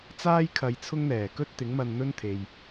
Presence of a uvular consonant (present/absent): absent